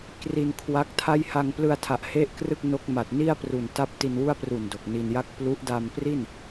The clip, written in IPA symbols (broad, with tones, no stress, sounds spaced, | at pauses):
k r i˧ n kʰ w a˦˥ k̚ tʰ a˥˩ j h a˧ ŋ p l ɯ˧ a̯ tʰ a˨˩ ʔ h e˥˩ ʔ k r ɯ˥˩ k̚ n o˦˥ k̚ m a˨˩ t̚ n i˥˩ a̯ p r u˨˩ n t a˥˩ p̚ t i˧ n w u˥˩ a̯ p r u˨˩ n d o˨˩ k̚ n i˧ n j a˦˥ k̚ p l u˦˥ ʔ d a˧ m p r i˥˩ n